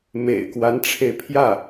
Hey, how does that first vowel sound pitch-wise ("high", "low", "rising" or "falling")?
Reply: low